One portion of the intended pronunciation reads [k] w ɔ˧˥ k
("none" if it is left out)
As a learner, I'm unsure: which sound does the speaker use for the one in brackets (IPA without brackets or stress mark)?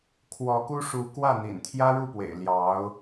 kʰ